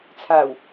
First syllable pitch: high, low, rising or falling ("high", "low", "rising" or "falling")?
low